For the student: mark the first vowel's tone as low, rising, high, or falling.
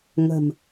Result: low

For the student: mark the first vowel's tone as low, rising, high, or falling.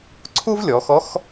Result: high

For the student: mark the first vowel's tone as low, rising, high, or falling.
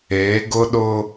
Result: rising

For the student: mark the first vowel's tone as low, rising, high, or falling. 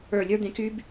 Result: low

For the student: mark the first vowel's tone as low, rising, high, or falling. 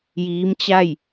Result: rising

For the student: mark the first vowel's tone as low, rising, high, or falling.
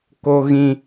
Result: high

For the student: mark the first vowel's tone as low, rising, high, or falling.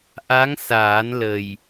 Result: rising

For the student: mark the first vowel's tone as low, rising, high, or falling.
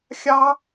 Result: high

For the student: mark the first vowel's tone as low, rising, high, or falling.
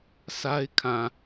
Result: high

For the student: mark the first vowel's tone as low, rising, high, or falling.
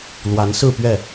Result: rising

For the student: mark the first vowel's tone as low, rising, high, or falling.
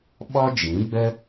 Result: high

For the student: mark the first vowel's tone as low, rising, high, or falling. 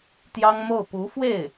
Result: high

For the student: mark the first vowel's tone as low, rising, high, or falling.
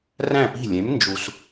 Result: falling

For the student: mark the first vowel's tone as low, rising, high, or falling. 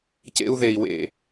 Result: high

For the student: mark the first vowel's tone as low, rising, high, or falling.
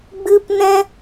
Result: high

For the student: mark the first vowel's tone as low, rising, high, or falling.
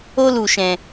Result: high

